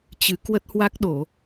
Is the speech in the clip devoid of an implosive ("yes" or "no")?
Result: no